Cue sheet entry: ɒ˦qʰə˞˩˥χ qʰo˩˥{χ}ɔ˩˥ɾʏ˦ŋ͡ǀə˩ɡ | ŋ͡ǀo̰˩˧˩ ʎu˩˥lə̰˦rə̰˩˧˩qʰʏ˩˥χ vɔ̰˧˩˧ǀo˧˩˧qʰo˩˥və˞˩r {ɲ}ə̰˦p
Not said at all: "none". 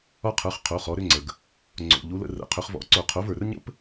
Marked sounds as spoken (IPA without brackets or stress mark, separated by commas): χ, ɲ